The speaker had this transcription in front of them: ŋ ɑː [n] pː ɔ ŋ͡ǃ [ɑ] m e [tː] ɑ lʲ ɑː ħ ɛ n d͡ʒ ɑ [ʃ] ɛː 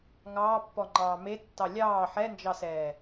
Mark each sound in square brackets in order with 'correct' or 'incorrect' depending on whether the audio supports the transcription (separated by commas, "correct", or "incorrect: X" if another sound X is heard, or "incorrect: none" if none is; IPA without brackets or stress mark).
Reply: incorrect: none, incorrect: ɑː, correct, incorrect: s